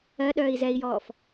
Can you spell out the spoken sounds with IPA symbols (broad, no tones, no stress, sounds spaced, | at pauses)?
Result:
ɜ ɗ œː i̯ z ɛ i̯ j ɔː f